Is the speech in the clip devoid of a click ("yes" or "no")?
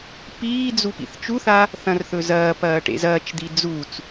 yes